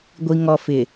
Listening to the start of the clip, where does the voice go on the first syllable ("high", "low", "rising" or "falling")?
low